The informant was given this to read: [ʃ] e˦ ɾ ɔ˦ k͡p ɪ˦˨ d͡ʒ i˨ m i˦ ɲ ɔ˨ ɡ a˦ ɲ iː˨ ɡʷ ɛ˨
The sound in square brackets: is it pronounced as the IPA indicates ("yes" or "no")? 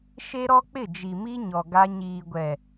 yes